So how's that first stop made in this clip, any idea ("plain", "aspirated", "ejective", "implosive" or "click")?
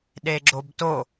implosive